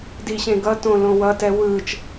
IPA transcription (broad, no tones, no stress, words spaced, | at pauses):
diɕẽɡʌtõ lõwʌtɛ wɯːt͡ʃ